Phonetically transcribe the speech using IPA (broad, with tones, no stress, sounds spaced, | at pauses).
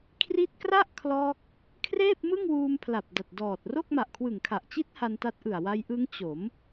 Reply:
kʰ r i˦˥ t̚ k r a˥˩ ʔ kʰ l ɔː˦˥ k̚ | kʰ r eː˥˩ p̚ m ɯ˥˩ ŋ w uː˧ m pʰ l a˨˩ p̚ d a˨˩ t̚ d ɔː˨˩ t̚ r o˥˩ k̚ m a˨˩ ʔ kʰ w ɯ˨˩ ŋ kʰ a˨˩ ʔ t͡ɕ i˦˥ t̚ h a˧ n t a˦˥ t̚ ʔ ɯ˨˩ a̯ w a˧ j ʔ ɯ˦˥ ŋ t͡ɕ o˩˦ m